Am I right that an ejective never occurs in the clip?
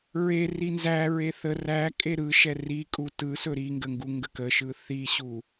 no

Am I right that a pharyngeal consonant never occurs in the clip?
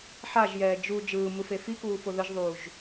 no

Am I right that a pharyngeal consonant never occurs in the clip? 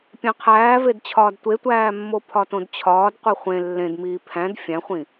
yes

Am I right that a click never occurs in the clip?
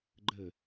no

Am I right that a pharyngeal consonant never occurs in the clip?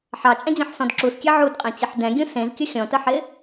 no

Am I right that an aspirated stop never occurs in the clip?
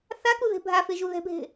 yes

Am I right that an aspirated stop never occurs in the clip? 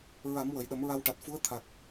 no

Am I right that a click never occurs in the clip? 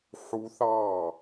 yes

